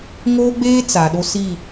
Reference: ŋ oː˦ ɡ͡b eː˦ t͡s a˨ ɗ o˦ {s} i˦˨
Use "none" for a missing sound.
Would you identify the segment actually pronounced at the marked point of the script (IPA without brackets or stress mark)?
s